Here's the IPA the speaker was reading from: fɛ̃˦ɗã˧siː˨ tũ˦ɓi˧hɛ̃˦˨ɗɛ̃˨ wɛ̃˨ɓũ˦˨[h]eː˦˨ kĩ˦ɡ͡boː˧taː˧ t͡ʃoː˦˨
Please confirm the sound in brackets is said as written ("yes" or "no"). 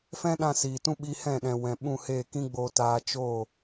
yes